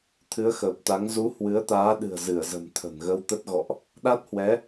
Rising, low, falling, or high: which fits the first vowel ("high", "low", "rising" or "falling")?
rising